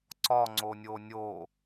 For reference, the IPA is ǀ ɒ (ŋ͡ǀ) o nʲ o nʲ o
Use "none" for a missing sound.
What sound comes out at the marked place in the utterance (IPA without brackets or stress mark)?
ŋ͡ǀ